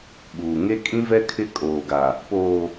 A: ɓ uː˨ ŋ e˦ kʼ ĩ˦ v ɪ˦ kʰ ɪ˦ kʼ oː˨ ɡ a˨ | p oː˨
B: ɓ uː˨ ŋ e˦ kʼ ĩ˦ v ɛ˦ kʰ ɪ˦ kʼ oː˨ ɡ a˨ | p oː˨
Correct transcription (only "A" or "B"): B